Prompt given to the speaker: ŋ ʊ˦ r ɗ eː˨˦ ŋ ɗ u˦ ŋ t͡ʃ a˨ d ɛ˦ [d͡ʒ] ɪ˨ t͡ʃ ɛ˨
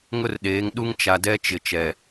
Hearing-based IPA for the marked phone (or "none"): t͡ʃ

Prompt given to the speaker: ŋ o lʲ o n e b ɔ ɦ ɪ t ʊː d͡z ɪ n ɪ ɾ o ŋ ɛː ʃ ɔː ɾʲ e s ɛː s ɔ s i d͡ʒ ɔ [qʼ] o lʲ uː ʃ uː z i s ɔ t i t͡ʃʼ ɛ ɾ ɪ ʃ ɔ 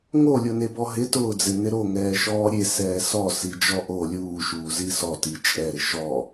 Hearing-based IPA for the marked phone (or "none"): ʔ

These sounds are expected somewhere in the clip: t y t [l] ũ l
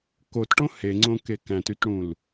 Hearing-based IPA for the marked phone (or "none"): ɽ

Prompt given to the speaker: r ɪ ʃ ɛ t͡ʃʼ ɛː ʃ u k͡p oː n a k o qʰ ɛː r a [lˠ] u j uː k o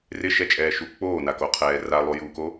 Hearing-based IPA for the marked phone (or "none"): lˠ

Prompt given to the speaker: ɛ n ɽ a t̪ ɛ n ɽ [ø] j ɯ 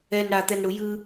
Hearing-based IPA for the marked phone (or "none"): u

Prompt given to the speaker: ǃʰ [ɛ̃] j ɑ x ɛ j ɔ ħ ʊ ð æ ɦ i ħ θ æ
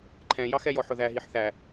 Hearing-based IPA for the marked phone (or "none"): ɛ̃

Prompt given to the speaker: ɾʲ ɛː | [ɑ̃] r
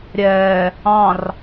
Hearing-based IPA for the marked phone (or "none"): ɑ̃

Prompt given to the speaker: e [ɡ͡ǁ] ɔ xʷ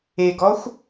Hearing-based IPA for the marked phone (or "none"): ɡ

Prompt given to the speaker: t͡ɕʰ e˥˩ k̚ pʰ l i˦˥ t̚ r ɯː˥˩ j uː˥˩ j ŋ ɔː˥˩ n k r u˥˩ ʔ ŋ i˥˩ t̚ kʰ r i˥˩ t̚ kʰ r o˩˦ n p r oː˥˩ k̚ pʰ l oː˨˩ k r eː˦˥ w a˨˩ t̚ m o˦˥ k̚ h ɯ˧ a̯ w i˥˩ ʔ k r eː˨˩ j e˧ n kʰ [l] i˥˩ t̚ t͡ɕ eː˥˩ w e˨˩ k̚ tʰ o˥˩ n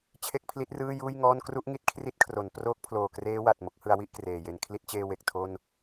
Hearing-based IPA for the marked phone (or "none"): l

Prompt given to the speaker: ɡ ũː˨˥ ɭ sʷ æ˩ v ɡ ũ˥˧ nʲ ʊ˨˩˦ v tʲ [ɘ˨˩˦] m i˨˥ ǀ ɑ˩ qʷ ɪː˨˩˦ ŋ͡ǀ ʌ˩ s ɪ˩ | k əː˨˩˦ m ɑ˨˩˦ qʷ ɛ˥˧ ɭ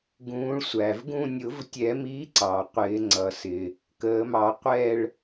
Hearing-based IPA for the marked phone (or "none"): ɛ˨˩˦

